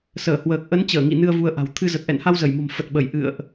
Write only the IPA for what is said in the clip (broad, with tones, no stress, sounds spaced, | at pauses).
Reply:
s əː˧˩ h w əː˨˩ k̚ ʔ ə˨˦ n t͡ɕ əː˧˩ ŋ ḭ˧˨ n ɨ˧ ə̯ v u˧ ə̯ ʔ a̤˨˩ w t̪ʰ ɨ˧ z ə˨˩ t̚ ʔ ɛ̰˧˨ n h a˧ w z ə˧˩ j m o̤˨˩ m f ə˨˩ t̚ ɓ ə˧˩ j ʔ ɨ̰˧˨ ə̯ ʔ